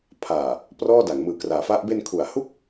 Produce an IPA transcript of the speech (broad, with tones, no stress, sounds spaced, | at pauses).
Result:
pʰ aː˨˩ | p r ɔː˥˩ d a˩˦ ŋ m ɯː˨˩ k r aː˩˦ f a˦˥ ʔ b e˧ n kʰ u˨˩ a̯ h u˥˩ k̚